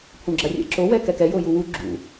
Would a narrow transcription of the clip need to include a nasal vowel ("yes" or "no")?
yes